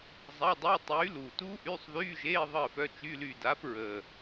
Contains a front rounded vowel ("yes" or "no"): yes